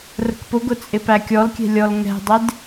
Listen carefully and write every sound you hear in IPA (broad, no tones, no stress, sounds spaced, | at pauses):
r ə̤ k p ʊ ɡ ʊ t͡sʼ ɪ p æ kʲ ɔ l kʲ ɛ̤ lʲ ɔ l ŋ ɛ̤ dˤ ɪ d